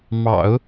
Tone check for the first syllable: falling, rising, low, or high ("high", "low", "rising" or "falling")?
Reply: low